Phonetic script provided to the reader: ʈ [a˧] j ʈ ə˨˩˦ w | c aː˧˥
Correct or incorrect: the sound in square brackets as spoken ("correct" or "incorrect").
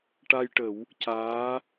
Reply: correct